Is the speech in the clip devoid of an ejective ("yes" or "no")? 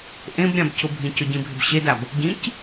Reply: yes